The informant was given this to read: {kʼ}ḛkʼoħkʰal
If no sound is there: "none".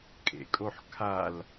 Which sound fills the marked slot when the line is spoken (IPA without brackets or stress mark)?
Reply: kʼ